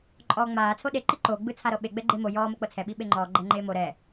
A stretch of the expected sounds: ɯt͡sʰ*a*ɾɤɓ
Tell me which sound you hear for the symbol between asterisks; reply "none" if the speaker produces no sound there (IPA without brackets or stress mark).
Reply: a